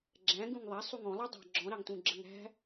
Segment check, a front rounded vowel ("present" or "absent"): absent